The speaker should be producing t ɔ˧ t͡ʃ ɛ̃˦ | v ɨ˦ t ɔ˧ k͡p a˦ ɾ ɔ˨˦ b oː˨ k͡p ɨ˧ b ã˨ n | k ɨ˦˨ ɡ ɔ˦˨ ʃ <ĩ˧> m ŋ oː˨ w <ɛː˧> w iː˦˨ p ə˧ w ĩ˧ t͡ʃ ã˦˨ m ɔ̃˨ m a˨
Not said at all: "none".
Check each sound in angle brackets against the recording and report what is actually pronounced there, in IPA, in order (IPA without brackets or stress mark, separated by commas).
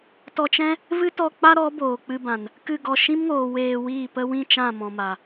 ĩ˦, eː˧